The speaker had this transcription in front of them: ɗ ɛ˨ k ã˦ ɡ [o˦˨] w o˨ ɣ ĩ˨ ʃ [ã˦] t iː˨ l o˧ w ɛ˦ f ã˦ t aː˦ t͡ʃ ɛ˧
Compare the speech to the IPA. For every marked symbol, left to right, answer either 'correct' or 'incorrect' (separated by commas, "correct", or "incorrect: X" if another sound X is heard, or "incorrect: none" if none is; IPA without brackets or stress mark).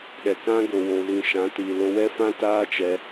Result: incorrect: o˨, incorrect: ã˨˦